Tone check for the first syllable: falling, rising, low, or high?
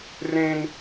high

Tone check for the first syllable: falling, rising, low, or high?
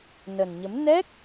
low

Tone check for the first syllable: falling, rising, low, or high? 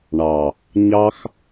low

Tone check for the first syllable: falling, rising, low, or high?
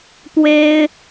high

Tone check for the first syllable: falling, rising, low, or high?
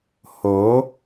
rising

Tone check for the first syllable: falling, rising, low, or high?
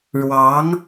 rising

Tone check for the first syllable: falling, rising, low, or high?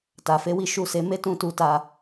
low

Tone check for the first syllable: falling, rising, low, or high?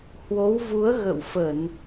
rising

